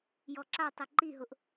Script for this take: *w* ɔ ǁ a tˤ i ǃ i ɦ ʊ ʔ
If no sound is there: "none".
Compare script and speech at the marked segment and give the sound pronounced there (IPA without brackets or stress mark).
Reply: j